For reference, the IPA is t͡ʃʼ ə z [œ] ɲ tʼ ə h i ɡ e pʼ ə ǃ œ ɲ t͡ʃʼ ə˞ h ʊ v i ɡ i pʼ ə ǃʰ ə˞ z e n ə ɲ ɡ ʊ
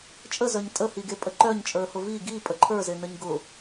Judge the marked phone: correct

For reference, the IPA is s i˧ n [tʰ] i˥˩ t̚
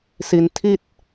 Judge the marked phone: correct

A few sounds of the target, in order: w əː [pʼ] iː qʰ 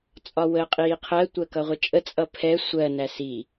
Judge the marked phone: incorrect: qʼ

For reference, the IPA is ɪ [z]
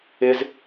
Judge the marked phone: correct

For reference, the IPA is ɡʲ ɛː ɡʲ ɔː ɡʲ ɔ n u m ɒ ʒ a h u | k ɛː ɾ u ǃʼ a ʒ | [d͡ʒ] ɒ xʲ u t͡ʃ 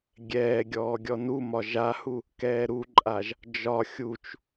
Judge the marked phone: correct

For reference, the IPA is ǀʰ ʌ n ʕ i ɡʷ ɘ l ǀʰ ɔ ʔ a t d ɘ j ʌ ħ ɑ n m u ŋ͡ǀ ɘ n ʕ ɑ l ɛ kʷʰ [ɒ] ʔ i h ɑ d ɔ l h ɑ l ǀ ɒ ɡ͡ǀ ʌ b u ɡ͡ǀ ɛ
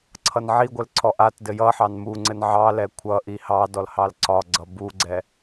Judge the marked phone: incorrect: ʌ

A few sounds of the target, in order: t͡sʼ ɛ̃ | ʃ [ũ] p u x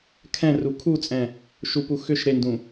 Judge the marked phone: incorrect: u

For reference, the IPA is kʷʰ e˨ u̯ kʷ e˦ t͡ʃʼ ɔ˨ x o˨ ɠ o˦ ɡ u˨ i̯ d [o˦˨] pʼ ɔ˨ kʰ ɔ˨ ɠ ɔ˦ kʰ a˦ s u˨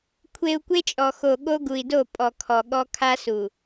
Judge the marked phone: correct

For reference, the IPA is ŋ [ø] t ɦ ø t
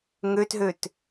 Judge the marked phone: correct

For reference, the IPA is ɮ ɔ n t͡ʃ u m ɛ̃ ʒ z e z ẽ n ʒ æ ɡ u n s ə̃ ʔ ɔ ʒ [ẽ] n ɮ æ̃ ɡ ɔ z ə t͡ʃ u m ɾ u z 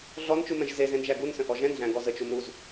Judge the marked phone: incorrect: ɛ̃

